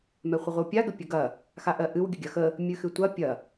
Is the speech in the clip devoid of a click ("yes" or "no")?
yes